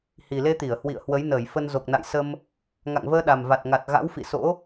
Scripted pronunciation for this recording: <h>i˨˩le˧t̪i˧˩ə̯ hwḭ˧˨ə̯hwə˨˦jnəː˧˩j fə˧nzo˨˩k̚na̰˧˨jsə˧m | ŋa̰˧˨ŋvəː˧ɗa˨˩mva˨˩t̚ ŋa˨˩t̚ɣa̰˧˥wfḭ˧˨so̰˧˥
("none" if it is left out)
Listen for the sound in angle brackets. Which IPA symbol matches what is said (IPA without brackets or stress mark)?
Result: h